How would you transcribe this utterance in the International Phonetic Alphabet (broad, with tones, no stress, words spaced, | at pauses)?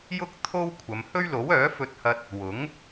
jʊ˥k̚ t̪ʰo˥wkʷʰɐ˨˧m hɵ˥ɥlo˨˥wœː˨˥ fɵ˧t̚hɐ˧t̚ | wʊ˨˥ŋ